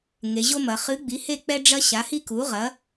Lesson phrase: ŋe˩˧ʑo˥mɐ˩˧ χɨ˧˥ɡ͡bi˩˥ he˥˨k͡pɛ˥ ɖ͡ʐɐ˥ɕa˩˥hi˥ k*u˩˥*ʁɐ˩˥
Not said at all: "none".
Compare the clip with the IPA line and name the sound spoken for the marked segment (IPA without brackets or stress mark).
u˩˥